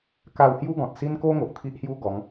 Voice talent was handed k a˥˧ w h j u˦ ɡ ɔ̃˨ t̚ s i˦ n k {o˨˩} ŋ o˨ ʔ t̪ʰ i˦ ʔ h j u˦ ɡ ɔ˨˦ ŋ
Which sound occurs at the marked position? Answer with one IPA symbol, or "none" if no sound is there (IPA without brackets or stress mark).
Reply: o˦